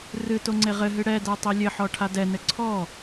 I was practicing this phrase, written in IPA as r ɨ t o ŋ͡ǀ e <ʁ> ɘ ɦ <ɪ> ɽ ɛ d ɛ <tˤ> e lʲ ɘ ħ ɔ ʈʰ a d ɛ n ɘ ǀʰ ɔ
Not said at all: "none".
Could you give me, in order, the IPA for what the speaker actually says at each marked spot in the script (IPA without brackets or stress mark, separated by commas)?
ʁ, ɨ, tˤ